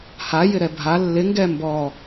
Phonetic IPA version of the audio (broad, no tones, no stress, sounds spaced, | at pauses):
h a j ɪ ɾ ɛ bʱ a lː ɪ ŋ ɡ ɛ m b ɔ